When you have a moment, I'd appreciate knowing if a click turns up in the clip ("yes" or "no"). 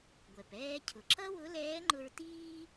yes